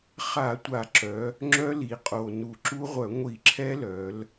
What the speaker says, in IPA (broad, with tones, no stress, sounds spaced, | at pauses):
χ a˧˩˧ tʷ a˧˩˧ ǁ œ˩˧ | ŋ͡ǁ œ˦˥ l i˩˧ qʼ o˨˩ n u˧˩˧ ǁ u˦˥ ʁʷ œ˧˩˧ ŋʷ i˧˩˧ ǁʰ ɛ˦˥ l œ˩˧ l